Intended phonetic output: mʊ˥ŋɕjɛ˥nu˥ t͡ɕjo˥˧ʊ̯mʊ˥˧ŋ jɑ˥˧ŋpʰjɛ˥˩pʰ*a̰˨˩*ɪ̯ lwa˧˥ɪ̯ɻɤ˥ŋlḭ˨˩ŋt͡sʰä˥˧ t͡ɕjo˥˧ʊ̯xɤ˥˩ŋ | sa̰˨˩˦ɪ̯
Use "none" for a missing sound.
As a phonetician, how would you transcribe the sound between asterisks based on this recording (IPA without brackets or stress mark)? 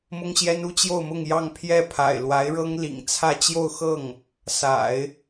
a̰˨˩